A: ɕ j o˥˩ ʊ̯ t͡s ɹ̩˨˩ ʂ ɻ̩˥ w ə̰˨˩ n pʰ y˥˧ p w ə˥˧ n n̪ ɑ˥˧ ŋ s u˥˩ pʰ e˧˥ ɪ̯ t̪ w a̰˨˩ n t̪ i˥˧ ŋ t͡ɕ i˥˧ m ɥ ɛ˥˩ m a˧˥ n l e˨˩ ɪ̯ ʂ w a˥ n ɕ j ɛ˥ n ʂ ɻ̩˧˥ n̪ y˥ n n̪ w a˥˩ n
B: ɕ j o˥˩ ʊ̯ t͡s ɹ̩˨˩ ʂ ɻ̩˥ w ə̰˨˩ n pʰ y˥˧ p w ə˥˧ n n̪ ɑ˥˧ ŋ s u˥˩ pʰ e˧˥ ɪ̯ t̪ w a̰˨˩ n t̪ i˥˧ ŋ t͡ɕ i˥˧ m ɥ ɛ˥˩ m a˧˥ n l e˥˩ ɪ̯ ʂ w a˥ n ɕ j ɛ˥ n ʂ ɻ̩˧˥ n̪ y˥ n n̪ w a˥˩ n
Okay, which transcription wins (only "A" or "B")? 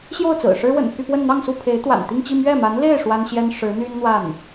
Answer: B